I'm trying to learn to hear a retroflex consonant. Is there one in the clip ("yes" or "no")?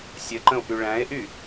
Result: yes